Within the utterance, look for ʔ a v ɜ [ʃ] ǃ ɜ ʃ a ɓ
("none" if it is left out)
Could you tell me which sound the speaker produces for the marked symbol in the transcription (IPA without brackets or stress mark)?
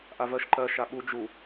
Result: ʃ